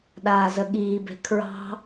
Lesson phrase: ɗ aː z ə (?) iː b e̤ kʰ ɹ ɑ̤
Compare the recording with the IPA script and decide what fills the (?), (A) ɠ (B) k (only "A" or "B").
A